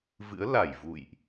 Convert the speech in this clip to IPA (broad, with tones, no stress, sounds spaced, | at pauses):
v ɨ̰˧˥ ə̯ l a˧˩ j v ṵ˧˨ j ʔ